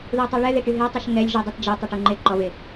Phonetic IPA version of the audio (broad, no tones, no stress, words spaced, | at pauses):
ðutˤuɭɛ ðeʈyɦetˤuʃ ŋɛlʲʒudˤɛt d͡ʒe tˤoʈuŋ͡ǃe ǃɔve